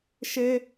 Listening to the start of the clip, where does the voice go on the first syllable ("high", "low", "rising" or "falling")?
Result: high